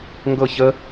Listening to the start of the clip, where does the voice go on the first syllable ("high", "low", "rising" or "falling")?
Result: falling